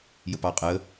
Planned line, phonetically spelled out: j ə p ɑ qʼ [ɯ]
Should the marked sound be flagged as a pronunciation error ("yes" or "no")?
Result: yes